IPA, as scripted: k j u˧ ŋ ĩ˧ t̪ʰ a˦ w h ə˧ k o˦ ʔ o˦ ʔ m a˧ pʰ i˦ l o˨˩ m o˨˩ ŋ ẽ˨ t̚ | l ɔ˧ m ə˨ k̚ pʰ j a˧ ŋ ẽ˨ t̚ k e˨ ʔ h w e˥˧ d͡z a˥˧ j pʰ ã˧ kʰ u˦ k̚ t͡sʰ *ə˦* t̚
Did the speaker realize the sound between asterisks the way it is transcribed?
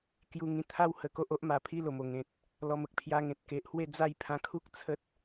yes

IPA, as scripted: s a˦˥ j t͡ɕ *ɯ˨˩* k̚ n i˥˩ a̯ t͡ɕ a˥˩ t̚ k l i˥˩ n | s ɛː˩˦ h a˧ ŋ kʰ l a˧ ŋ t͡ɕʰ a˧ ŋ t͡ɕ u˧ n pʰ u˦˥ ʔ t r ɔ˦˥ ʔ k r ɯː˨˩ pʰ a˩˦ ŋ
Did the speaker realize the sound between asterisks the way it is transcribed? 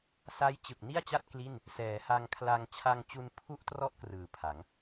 yes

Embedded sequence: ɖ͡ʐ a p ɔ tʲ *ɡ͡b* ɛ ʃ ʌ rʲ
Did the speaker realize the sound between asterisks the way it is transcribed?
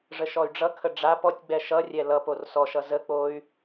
yes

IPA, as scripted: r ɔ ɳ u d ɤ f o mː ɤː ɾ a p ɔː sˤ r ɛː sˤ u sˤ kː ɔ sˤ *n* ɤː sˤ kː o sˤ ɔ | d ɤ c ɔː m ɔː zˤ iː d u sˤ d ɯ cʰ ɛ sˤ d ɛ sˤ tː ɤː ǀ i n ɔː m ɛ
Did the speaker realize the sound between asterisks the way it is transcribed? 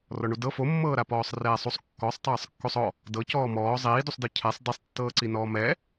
no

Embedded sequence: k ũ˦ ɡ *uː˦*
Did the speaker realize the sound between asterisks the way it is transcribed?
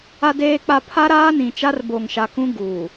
no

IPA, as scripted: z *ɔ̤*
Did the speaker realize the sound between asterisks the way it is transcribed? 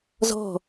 yes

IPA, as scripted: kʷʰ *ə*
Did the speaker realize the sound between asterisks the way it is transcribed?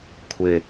no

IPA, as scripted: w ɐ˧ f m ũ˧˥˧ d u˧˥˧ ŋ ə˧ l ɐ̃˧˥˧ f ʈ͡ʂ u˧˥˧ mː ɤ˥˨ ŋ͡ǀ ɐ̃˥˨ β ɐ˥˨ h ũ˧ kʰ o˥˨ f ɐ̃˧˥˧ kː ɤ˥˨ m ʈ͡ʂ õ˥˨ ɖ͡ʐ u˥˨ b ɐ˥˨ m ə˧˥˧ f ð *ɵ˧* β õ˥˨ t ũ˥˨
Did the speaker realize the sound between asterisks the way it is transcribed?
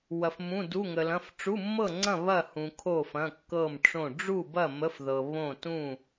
no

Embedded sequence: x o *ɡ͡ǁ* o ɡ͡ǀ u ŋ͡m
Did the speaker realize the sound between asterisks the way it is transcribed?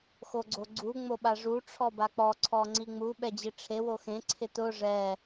no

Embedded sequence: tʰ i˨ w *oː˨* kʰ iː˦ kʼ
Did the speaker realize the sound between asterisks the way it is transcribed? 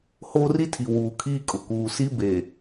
no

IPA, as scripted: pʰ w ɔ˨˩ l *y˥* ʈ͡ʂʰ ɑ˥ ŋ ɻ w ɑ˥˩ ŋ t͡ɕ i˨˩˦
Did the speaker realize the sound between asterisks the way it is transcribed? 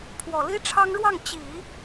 no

